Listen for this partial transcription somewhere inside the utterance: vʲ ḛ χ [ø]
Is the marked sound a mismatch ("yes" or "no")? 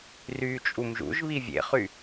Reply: yes